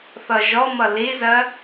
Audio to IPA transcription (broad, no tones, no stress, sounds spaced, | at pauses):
θ ʌ ʒ ɔ m ʌ l i z ɜ